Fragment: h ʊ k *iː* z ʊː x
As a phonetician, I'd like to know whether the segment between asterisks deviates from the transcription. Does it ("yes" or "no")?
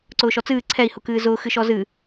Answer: yes